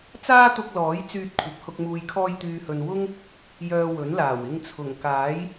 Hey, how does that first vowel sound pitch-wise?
high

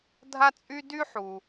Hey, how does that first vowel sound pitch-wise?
high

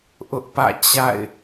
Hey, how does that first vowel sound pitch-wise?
high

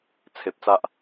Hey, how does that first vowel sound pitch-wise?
low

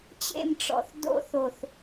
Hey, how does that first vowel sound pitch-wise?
falling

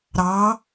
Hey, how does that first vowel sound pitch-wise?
rising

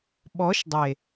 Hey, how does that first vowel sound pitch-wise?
rising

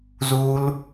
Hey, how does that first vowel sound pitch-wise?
high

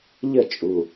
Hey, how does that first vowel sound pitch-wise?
falling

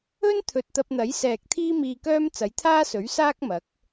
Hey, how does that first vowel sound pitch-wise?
high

